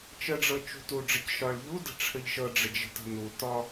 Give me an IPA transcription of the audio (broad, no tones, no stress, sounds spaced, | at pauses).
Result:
t͡ʃ ə ɖ͡ʐ ɤ t͡ʃ ṳ t u ɖ͡ʐ ə c ʃ ɒ ɭ ʎ u d ə̤ ʈ͡ʂʰ ə ʎ ʃ ɤ ɖ͡ʐ ə d͡ʒ ə̤ t ə̤ n u t ɒ